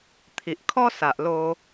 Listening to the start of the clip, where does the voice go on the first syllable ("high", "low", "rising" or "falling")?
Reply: low